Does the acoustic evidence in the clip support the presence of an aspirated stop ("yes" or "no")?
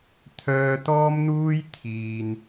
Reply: yes